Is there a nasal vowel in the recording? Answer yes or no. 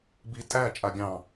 yes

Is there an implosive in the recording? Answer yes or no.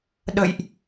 yes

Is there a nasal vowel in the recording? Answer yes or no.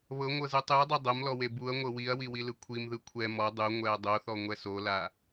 no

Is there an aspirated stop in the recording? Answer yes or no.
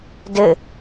no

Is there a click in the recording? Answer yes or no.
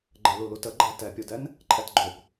yes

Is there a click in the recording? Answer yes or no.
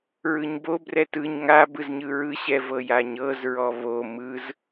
no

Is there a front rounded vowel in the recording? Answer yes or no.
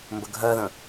no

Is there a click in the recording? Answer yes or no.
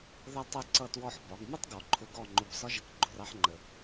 yes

